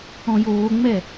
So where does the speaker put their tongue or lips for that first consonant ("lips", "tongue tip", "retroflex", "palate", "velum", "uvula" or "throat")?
palate